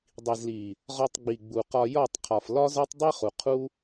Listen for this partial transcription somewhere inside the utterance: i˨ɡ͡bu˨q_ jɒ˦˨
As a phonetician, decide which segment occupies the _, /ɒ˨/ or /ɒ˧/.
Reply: ɒ˧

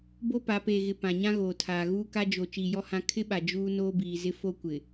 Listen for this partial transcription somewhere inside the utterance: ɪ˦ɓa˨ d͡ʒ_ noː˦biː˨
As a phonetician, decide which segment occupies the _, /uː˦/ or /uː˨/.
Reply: uː˦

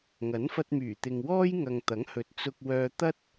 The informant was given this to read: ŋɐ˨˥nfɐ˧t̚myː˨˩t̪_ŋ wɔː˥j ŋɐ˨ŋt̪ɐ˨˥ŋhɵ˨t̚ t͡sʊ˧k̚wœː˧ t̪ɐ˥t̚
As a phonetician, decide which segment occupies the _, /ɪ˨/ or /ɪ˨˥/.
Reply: ɪ˨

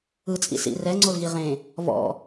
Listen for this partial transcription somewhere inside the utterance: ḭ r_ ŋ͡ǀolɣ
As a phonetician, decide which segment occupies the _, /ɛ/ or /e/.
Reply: ɛ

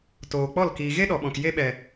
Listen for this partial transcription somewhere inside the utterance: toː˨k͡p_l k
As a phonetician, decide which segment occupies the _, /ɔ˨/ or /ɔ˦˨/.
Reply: ɔ˦˨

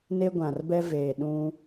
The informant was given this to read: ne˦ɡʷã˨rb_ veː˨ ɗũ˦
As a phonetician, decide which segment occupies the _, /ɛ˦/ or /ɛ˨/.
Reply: ɛ˦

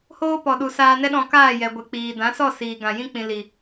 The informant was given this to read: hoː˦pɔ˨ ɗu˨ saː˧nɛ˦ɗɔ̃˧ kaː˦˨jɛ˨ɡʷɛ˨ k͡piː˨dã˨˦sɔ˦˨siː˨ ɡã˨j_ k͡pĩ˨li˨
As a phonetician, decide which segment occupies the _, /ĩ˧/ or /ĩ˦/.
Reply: ĩ˧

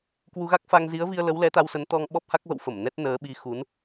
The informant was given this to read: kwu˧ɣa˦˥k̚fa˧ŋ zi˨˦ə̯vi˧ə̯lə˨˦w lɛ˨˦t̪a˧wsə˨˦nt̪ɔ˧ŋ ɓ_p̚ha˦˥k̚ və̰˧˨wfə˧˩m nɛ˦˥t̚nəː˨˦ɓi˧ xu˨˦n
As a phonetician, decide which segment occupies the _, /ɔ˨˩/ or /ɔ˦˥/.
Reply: ɔ˦˥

